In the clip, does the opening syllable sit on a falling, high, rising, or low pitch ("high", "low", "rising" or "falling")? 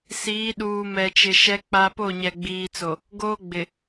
rising